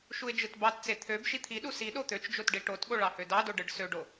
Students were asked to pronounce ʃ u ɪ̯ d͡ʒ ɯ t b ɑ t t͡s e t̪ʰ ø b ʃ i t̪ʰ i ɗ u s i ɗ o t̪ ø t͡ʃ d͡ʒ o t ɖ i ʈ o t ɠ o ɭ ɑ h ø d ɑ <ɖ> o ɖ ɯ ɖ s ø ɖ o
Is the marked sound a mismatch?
yes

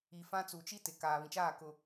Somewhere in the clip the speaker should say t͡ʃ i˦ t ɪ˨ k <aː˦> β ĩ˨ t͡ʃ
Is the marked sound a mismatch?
yes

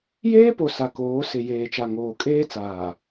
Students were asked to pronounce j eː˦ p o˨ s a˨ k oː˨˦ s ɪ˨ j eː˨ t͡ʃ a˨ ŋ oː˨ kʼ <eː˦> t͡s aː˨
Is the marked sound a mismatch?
no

